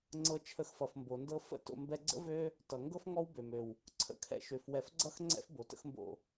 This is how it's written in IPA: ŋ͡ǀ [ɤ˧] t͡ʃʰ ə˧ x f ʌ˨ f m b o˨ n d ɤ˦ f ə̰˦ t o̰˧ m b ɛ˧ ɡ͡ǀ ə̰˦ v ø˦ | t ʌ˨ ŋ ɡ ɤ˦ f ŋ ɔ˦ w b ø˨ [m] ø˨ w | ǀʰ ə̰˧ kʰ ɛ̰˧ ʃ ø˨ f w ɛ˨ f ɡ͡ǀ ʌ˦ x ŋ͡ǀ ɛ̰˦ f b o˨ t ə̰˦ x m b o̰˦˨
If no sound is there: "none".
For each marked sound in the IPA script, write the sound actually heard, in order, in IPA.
ɤ˧, m

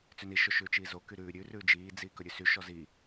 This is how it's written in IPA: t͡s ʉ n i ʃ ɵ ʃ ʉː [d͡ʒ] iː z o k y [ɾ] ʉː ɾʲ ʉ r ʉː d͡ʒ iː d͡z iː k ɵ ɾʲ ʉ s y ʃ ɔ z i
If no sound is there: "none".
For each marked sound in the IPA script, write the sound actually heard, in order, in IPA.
t͡ʃ, ɾ

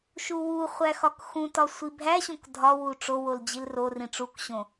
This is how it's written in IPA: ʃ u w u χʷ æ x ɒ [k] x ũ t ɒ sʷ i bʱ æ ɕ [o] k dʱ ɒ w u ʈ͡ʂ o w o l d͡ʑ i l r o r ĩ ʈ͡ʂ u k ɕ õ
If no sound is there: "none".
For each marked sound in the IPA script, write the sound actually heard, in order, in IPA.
k, õ

